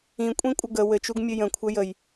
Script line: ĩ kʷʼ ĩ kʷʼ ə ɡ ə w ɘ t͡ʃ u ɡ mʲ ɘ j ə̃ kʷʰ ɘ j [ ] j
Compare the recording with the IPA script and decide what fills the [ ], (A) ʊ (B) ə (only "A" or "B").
B